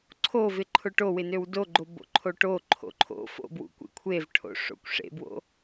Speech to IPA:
ǀʰ o v ɪ ǃʰ ʊ ʈ o w ɪ n ø w d o ɡ͡ǃ o b o̰ ǃʰ o ʈ o ǃʰ o̰ ǃʰ o̰ f o̰ b w ṵ kʷ ḛ kʷʰ e v ʈʰ o̰ ʂ o̰ kʷ ʂ ḛ b w o̰

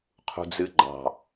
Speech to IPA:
qʰ ṳ d͡z ɨ ɡ͡ǃ ɑ̤

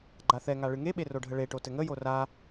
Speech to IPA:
ɡ͡ǃ a θ ɛ ŋ a ɭ ɨ ŋ e ɓ e r o ɖʱ ə ɭ e ʈ o t ɘ ŋ ə j o r a

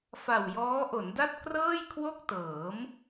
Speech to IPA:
f a˨˩ w j ɔː˦˥ ʔ o˩˦ n d a˥˩ t̚ k r ɤː˥˩ j kʰ w o˥˩ k̚ t ɤː˩˦ m

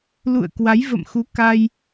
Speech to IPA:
l ṵ˧˨ ə̯ k w a˨˦ j v ə̰˧˨ m x u˨˦ k a˧ j

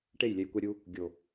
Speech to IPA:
ʈ e˦˨ j lʲ ɛ˧ j kʷ ɛ˧ ɾʲ u˧ | ɡʲ o˨

